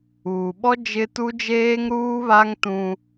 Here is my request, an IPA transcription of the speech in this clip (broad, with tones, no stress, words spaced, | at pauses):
uː˨ɓɔ˦ d͡ʒɪ˦ tu˦d͡ʒeː˦ŋ ɾuː˦βa˦ŋtũ˦